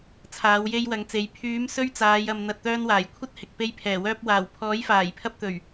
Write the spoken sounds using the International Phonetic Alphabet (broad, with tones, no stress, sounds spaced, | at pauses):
t͡sʰ aː˨˧ w j e˧ j w ɐ˨˧ ŋ t͡s e˨˧ j pʰ yː˨˧ m s ɵ˧ ɥ t͡s aː˨˧ j ɐ˨ m n̪ ɐ˨ t̚ t̪ œː˧ n w aː˨˩ j kʷʰ ɐ˥ t̚ h ɪ˨ k̚ p e˧ j pʰ ɛː˨˩ w œː˧ p̚ w aː˨˩ w pʰ ɔː˨˥ j f aː˨˩ j pʰ ɐ˧ p̚ t̪ ɵ˨˩ ɥ